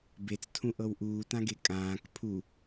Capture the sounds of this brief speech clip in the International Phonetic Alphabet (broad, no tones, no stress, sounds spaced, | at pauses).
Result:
b e t͡s tʰ ũ ʔ ɤ w ʔ uː t ã ɡ e kʼ ãː k pʰ u